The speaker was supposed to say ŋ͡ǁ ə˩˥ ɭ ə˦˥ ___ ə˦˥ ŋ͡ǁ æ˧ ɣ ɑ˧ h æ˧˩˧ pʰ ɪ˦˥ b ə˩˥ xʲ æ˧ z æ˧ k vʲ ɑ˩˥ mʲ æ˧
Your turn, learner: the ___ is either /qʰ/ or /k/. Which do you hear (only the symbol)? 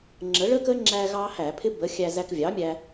k